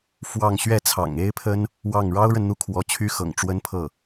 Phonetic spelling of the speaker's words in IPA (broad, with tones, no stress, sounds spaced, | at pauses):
f w ɑ˥˧ ŋ ɕ ɥ ɛ˥˩ t͡sʰ ɑ̰˨˩ ŋ e˥ ɪ̯ pʰ ə˥ n | w ɑ˥˩ ŋ ɻ ɑ˥ ʊ̯ ɻ ə˨ n n̪ u˥˩ kʰ w ɔ˧˥ t͡ɕʰ y˥ x ɤ̰˨˩ ŋ ʈ͡ʂ w ə˥ n pʰ ɤ˥˩